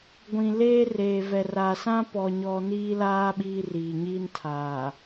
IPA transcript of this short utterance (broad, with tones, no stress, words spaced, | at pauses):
ɡʷĩ˨leː˦ reː˨vɛ˨ra˨ sã˦ pɔ˦ɲɔ˦ niː˦laː˦ ɓiː˦riː˨ɲiː˦ntʰaː˨